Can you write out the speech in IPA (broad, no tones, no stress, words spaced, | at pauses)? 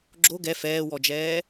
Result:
ɡ͡ǁo ɡɛ fɛːwɔd͡ʒɛː